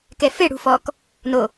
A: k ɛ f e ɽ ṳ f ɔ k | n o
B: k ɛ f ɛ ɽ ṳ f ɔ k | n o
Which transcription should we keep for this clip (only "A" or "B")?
A